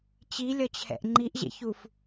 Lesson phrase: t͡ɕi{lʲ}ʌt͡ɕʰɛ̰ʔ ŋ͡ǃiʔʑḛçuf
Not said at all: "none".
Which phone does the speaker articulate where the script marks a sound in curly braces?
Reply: lʲ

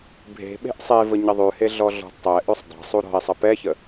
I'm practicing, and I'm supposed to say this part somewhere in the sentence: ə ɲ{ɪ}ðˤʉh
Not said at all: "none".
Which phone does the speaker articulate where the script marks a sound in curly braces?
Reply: ə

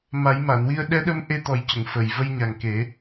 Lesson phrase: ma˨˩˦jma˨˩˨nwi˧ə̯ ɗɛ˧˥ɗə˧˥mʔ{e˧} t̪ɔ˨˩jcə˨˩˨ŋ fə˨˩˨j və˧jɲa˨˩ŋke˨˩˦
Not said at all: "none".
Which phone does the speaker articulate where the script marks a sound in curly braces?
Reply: e˧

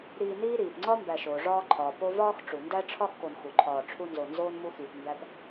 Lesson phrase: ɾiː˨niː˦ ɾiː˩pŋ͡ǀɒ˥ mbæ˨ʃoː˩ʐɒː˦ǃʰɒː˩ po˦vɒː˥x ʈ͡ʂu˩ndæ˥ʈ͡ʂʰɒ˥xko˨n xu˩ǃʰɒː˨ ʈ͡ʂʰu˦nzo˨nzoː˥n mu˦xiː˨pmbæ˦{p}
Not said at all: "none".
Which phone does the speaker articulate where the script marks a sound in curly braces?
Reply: p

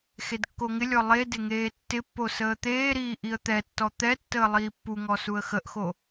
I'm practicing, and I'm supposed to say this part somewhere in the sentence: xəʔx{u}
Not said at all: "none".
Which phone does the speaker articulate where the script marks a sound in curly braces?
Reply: o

